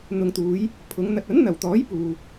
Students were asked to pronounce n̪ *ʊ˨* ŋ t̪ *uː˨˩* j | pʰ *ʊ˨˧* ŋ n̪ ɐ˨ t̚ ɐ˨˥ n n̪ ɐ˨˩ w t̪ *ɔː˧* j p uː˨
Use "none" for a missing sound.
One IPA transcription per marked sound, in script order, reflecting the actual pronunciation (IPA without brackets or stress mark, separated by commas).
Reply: ʊ˨, uː˨˧, ʊ˨˧, ɔː˨˥